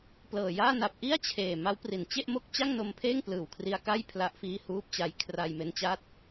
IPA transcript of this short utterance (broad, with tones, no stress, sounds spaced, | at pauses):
p l ɤː˨˩ j aː˥˩ n a˨˩ p̚ ʔ i˥˩ a̯ t͡ɕʰ eː˨˩ m a˦˥ w p r i˨˩ n t͡ɕ e˥˩ ʔ m o˥˩ k̚ t͡ɕ a˥˩ ŋ n o˧ m pʰ eː˥˩ ŋ p l ɯː˨˩ w kʰ r i˧ a̯ k a˥˩ j pʰ l a˦˥ ʔ f iː˦˥ h uː˦˥ p̚ t͡ɕ a˦˥ j kʰ r a˧ j m e˦˥ n t͡ɕ aː˥˩ t̚